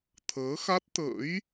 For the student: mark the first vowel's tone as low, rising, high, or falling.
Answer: rising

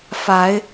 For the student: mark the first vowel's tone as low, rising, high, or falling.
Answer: rising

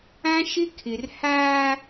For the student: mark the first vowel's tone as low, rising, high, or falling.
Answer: high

